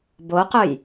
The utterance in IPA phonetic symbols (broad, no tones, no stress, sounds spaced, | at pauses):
b o q œ j